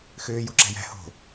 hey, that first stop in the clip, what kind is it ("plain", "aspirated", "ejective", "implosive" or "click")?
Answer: click